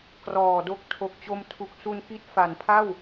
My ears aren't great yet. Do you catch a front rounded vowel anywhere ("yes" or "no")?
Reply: no